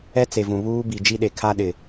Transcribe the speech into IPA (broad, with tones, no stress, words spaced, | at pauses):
ɛ˦t͡se˨vũ˨ βuː˦ bi˨d͡ʒi˦ɗe˨ kʰa˦ɗɪ˨